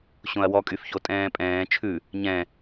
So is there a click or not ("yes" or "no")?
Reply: no